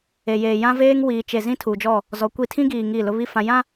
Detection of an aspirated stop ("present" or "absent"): present